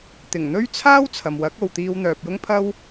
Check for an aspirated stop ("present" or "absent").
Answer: present